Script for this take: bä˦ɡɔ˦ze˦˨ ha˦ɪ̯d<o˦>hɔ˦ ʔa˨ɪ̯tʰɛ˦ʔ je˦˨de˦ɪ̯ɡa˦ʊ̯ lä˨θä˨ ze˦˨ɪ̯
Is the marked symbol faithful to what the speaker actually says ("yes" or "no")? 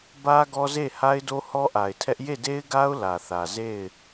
yes